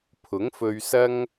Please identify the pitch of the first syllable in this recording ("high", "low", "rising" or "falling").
rising